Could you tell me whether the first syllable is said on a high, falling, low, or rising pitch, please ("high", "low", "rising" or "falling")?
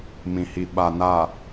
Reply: low